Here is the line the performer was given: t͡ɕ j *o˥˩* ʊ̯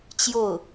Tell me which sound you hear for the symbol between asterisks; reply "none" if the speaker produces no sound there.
o˥˩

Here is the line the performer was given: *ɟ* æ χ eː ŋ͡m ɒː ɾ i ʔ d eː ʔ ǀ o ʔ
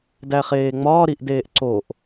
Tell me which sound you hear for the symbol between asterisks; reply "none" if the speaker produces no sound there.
d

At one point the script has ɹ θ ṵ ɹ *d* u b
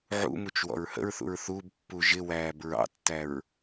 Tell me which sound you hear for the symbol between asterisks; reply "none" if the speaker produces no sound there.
θ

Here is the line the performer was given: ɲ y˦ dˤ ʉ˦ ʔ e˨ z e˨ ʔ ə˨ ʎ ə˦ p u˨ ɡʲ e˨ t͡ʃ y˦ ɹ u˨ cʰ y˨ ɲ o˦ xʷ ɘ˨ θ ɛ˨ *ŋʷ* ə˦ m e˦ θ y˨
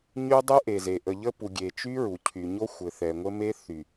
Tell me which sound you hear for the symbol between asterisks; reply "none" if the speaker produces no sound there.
ŋʷ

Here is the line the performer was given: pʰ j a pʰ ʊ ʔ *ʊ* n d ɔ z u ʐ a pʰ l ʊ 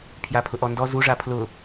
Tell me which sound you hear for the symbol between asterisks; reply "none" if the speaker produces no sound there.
ɔ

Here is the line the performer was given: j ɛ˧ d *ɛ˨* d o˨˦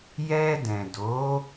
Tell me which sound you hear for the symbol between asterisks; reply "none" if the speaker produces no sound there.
ɛ̃˨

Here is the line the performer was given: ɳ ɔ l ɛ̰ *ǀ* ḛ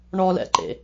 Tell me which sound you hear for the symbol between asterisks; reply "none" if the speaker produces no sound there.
ǃ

